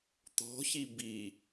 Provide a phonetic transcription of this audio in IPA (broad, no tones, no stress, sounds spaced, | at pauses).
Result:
t̪ ɔ̤ ç i b i